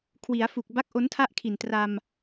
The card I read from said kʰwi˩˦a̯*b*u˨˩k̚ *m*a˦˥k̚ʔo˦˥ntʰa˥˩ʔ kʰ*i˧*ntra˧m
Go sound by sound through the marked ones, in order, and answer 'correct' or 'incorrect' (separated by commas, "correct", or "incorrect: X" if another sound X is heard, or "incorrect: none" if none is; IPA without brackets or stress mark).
incorrect: f, incorrect: b, incorrect: i˨˩